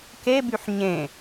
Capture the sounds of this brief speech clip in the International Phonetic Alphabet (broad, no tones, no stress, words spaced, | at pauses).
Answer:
kebyħ ɲẽ